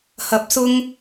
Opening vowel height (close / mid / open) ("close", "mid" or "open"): open